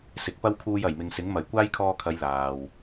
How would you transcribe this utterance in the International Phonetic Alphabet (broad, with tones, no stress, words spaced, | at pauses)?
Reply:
sɪ˨k̚pɐ˥wkʰuː˧j ɐ˨˩jmɪ˨ŋsɪ˨˥ŋ mɐ˨˩jkʷaː˥jkʰɔː˧kʰɐ˨˧j laː˨w